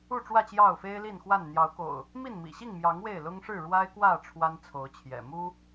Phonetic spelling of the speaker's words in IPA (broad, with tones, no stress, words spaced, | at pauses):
u˥˨ʈ͡ʂwä˥˨ t͡ɕjɑ˥˨ʊ̯fe˦ɪ̯li˥˨nxwa˥˨n n̪jɑ˨˦ʊ̯ko̰˨˩ʊ̯ | mi˥˨nmḭ˨˩ɕi˥˨ŋmjɑ˨˦ŋ we˥˨ɪ̯lʊ˦ŋʂɻ̩˥˨ ɻwa˦ɪ̯kwä˥˨ ʈ͡ʂʰwa˦nt͡sʰo˨˦ʊ̯t͡ɕʰjɛ̰˨˩ mu˦